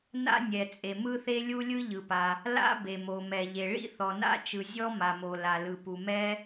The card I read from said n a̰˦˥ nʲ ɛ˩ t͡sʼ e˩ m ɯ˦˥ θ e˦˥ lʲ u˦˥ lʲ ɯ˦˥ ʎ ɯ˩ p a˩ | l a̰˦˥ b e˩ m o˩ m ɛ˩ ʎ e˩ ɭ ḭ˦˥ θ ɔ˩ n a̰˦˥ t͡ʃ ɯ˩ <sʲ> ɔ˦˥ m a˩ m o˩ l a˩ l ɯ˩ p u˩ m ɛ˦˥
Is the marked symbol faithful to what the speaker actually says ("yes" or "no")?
no